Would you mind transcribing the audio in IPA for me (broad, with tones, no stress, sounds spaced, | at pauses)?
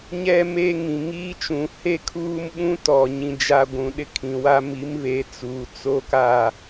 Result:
ɲ ɛ˦ m eː˦ ŋ ĩ˨ ŋ iː˦ t͡ʃ ũ˨ h e˦ kʰ uː˦ m ɓ ũ˦ t ɔ˨ ɲ ĩ˨ d͡ʒ a˨ ɡʷ ũ˨ ɗ ɪ˦ kʰ ĩ˨ w a˦ m i˨˦ m β e˨˦ t͡s uː˨ t͡s o˦ k a˦˨